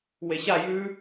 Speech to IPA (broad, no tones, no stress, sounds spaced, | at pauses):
w e ɕ a j ʉ